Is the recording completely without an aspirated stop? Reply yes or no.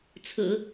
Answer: no